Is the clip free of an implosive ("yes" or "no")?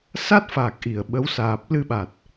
no